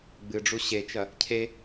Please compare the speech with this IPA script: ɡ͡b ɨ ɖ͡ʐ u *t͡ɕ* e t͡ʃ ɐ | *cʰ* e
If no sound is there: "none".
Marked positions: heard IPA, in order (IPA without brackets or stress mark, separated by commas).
ɕ, cʰ